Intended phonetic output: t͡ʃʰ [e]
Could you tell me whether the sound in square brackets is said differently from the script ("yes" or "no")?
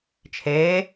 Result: no